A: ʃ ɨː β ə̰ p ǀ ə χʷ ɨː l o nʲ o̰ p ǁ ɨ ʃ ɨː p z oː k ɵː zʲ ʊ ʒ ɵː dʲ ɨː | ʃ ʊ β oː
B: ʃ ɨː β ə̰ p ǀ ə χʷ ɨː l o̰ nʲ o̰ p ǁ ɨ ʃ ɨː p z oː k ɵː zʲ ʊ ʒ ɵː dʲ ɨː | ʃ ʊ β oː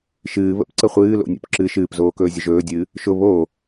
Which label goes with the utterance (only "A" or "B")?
B